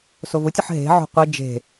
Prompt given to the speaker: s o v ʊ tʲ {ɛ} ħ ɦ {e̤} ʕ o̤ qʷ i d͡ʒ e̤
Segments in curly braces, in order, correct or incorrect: incorrect: ə, correct

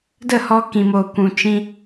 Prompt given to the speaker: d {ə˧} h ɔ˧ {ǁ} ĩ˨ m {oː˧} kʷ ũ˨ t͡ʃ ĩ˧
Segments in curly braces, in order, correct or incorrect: incorrect: ə˦˨, incorrect: k, incorrect: oː˨

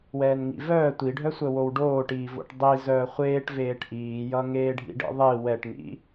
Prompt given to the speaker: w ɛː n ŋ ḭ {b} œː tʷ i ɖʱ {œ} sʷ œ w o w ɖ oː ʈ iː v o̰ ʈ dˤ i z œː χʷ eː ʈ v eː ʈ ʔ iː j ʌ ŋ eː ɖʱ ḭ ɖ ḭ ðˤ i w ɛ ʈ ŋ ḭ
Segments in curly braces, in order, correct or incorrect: incorrect: v, correct

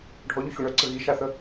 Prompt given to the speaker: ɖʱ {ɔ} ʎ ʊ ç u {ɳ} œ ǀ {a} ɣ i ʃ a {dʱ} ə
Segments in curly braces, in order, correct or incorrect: correct, correct, incorrect: ə, incorrect: θ

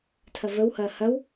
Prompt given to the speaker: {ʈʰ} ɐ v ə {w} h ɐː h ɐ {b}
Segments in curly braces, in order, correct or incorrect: incorrect: tʰ, correct, incorrect: w

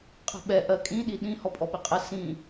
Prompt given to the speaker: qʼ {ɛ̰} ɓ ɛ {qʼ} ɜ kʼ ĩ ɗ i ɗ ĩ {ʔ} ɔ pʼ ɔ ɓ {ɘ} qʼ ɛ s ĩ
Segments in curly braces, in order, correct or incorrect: incorrect: ɛ̤, incorrect: ʔ, incorrect: h, correct

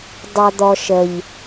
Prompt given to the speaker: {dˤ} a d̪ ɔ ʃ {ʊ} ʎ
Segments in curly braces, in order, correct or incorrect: correct, incorrect: ə

